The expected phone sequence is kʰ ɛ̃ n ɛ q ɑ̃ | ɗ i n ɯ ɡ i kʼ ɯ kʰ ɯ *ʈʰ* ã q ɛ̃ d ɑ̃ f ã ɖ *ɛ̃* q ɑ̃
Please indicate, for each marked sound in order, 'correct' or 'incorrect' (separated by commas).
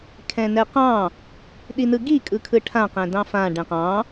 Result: correct, correct